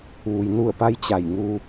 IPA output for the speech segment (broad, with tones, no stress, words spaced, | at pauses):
ʋu˩jnu˧˩ə̯pa˧j t͡ɕa˧˩jŋu˧